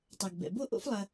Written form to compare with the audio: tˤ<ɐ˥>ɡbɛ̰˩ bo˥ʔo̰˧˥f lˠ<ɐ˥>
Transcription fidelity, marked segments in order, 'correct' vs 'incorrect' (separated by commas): incorrect, incorrect